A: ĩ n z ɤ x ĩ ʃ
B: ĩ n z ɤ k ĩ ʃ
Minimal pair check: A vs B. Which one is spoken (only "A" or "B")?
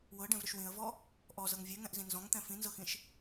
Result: A